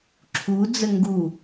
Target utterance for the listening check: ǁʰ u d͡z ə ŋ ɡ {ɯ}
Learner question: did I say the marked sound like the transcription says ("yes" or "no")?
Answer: no